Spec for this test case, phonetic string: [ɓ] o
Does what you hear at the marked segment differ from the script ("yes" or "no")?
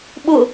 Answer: no